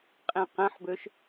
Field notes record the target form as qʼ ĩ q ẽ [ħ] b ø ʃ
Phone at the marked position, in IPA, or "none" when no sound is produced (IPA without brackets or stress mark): ħ